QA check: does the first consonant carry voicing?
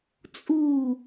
no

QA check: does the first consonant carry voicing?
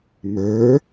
yes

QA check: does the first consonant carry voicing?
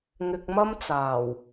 yes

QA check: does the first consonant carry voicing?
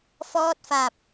no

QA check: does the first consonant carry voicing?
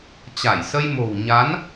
no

